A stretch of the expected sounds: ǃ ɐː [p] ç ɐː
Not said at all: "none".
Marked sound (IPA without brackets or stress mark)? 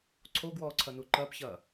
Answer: p